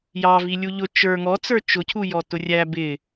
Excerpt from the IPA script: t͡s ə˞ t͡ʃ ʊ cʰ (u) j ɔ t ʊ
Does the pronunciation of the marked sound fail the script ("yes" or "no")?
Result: no